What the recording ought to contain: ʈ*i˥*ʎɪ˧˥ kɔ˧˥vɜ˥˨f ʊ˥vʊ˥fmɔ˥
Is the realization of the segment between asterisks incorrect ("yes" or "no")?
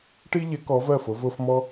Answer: no